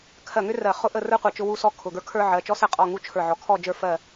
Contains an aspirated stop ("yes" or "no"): yes